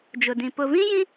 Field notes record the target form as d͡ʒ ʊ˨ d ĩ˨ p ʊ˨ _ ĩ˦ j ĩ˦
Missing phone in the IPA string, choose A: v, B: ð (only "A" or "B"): A